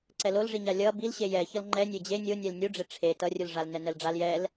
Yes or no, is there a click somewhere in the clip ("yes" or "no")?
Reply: yes